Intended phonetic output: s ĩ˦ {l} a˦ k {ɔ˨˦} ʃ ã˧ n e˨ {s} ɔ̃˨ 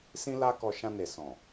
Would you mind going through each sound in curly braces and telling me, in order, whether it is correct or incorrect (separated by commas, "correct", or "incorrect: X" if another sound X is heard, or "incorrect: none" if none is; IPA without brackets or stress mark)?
correct, incorrect: ɔ˧, correct